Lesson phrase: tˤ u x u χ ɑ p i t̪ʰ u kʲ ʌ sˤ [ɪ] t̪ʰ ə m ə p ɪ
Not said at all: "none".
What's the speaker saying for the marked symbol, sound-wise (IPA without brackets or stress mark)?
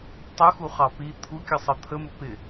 ə